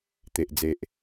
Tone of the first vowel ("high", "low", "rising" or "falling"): low